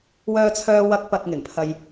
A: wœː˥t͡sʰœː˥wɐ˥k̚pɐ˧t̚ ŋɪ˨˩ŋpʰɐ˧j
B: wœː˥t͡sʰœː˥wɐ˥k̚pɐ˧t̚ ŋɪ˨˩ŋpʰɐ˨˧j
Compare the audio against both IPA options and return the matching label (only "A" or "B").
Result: A